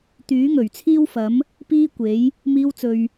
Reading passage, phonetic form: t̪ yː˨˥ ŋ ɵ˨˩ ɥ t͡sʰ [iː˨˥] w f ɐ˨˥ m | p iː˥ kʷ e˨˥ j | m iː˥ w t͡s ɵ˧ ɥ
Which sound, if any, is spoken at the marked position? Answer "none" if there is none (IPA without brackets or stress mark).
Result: iː˥